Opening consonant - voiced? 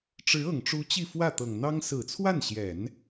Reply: no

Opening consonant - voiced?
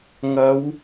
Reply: yes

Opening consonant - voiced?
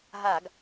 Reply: yes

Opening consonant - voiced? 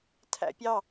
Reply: no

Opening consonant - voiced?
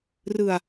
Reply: yes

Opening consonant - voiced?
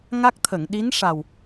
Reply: yes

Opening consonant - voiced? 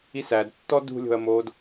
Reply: no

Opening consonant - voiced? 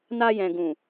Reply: yes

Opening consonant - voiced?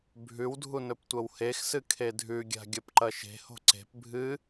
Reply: yes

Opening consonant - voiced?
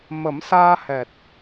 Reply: yes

